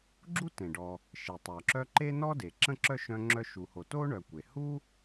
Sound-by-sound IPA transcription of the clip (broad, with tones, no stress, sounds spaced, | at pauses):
ɡ͡ǁ u˥ t ẽ˩ ɖ ɔ˨ | ʃ e˩ tˤ œ˩ ǁ œ˦ ǃ e˥ n ɔ˥ d e˩ ǁ ə̃˥ ǁ œ˥ ʃ œ̃˦ ŋ͡ǁ œ˦ ʃ u˨ h o˨ t o˥ ɳ œ˨ kʷ e˩ h u˥